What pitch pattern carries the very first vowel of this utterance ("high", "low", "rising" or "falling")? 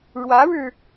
rising